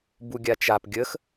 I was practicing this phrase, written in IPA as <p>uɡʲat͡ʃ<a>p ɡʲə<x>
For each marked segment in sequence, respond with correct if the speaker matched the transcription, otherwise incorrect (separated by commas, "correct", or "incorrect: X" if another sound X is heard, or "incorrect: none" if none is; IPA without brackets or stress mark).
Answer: incorrect: b, correct, correct